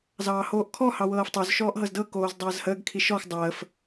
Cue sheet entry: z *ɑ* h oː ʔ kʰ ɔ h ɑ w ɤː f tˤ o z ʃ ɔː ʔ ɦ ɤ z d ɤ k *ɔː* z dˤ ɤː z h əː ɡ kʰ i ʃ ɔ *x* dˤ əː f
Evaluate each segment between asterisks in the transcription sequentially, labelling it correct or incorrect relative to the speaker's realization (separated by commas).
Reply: incorrect, incorrect, correct